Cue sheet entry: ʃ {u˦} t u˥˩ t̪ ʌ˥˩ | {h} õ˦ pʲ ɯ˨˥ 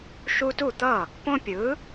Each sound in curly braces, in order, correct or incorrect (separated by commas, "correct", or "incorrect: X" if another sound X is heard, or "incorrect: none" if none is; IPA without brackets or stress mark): correct, incorrect: p